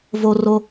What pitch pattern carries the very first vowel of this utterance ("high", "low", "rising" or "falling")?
low